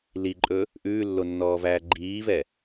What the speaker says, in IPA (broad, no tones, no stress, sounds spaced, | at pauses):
l i ǃʼ ɵ | ʔ ʉː lː o nː ɔː v æː ɡ͡ǃ iː v ɛ